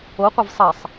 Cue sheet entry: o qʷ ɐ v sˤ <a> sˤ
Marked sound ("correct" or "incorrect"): incorrect